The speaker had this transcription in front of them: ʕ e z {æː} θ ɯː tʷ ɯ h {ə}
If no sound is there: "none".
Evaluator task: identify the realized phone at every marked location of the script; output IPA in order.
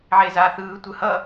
aː, ʌ

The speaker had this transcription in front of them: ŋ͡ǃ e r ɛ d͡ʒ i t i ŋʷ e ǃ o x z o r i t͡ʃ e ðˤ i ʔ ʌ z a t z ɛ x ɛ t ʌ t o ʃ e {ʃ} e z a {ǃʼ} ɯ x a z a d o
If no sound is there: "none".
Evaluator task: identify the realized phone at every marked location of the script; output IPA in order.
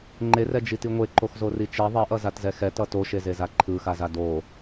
z, ǃʰ

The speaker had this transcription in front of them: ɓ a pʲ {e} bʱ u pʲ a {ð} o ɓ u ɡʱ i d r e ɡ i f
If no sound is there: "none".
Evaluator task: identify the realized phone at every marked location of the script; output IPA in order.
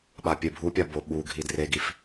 e, b

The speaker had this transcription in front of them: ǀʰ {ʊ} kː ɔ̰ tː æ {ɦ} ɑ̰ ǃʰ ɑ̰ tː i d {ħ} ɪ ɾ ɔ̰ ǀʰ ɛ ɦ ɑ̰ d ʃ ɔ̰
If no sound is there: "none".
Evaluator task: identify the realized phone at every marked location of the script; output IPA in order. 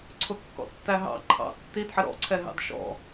ʊ, ɦ, ħ

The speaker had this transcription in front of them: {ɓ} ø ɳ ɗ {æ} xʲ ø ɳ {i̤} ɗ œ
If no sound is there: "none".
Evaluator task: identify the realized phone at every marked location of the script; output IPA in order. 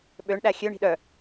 ɓ, æ, i̤

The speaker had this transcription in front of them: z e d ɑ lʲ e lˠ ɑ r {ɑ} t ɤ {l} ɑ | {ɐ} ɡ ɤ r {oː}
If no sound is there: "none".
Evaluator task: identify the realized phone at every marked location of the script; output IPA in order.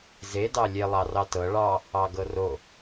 ɑ, ɭ, ɑ, o

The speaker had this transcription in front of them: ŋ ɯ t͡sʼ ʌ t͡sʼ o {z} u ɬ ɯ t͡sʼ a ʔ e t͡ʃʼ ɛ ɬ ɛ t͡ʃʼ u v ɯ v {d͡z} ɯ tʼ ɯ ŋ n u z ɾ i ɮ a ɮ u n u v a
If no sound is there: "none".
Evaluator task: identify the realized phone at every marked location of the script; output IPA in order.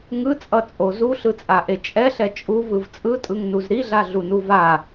z, t͡sʼ

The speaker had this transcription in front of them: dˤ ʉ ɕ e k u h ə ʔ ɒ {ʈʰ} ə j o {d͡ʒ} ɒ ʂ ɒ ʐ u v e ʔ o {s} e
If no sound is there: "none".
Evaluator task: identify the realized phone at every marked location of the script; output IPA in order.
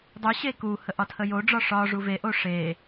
tʰ, ɖ͡ʐ, ʂ

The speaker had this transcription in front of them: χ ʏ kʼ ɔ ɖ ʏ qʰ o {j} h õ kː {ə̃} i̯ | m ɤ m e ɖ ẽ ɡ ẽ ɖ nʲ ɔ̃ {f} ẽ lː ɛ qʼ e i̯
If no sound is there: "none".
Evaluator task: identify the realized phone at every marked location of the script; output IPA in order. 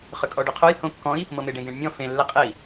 j, ɔ̃, f

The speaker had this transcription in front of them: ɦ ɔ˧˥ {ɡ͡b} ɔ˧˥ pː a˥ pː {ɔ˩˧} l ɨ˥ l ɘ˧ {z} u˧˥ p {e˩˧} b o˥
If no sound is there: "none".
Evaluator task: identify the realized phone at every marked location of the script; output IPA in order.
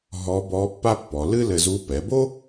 b, ɔ˩˧, z, ɛ˩˧

